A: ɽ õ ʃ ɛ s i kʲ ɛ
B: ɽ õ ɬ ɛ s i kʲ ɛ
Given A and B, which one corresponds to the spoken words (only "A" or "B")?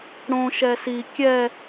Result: A